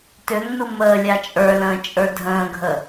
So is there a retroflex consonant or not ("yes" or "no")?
no